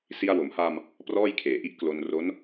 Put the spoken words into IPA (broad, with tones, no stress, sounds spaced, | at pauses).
s i˧ a̯ w o˩˦ m h aː˧ m | p r ɔː˥˩ j kʰ eː˨˩ ʔ i˥˩ ʔ k l o˧ n r o˦˥ n